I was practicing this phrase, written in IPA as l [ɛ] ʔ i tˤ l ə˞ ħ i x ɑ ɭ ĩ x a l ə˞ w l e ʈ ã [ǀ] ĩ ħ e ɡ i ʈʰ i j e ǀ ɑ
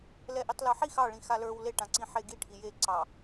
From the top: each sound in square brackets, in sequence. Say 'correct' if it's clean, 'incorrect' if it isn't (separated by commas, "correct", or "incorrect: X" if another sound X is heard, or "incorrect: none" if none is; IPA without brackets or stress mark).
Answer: correct, correct